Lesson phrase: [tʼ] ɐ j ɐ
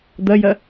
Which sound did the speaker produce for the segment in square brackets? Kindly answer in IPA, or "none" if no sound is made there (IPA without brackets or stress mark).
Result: d̪